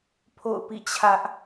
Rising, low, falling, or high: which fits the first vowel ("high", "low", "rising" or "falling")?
falling